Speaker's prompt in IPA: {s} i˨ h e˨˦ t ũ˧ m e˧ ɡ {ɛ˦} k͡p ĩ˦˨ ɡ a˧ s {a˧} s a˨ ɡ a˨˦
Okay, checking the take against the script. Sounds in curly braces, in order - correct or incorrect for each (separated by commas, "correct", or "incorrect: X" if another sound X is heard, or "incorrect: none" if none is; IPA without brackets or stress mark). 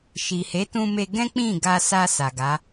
incorrect: ʃ, incorrect: ɛ̃˦, correct